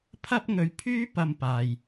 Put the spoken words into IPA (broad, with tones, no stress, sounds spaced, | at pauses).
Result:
pʰ ɐ˥ p̚ ŋ ɵ˧ ɥ pʰ yː˥ p ɐ˧ m p aː˨ j